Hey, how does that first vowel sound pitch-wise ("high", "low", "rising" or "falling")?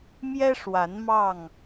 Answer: high